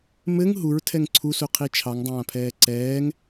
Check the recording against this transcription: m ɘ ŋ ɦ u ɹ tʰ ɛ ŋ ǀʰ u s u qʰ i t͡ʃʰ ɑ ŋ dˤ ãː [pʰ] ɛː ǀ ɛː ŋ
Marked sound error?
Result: no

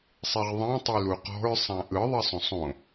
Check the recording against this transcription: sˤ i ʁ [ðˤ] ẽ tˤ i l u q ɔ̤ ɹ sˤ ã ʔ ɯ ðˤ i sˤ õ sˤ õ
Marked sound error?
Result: no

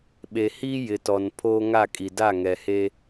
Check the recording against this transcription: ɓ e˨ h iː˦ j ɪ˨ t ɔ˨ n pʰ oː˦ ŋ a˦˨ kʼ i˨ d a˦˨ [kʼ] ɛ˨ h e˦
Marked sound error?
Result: yes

